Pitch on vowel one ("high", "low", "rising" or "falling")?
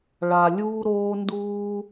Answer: low